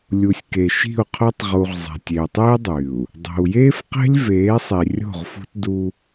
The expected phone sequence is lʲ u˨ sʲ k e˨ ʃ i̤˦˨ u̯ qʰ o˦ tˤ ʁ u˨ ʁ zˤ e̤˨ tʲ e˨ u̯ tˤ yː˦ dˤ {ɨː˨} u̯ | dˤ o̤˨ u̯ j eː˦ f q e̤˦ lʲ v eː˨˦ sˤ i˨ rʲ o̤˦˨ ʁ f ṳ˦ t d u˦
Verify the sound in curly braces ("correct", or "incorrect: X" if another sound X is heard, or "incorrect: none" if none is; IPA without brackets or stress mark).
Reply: incorrect: yː˨